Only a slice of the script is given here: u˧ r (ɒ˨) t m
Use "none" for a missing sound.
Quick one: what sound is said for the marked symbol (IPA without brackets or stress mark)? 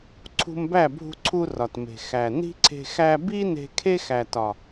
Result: ɒ˨